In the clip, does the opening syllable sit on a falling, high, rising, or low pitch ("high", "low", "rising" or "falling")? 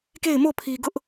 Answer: falling